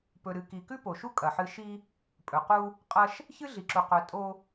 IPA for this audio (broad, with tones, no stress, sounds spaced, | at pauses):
p ɵ˨ ɾ ɨ˨ k i˨ k ʉ˦ p o˨ ʃ u˦ kʼ ɐ˨ ħ ɨ˦ ʃ i˦ | pʼ ɵ˨ q u˦ | qʼ ɐ˦ ʃ | ç ɨ˦ ɮ i˨ ǁ u˨ q ɵ˨˦ tʼ o˦